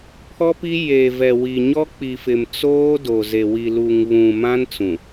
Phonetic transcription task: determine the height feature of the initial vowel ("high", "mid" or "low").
mid